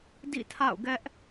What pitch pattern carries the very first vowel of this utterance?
falling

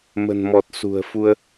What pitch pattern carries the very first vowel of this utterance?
low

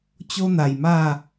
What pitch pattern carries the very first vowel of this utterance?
high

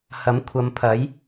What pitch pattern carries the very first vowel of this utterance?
rising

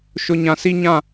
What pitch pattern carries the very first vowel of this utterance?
high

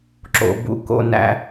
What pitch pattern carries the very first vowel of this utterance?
low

